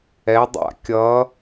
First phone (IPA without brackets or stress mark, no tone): ɛ